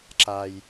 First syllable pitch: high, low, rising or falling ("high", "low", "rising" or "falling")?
low